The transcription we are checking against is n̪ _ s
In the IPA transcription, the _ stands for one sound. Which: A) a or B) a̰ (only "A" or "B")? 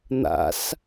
B